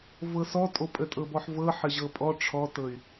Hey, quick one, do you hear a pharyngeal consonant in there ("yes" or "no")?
yes